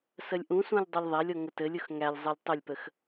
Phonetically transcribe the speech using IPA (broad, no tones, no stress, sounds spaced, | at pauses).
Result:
s ə lʲ ʔ ũ s ũ lʲ dˤ u lʲ ðˤ æ lʲ ɔ ŋ ə t ɘ lʲ ʊ x ŋ æ lʲ zˤ ɘ lʲ tˤ ə lʲ p ə x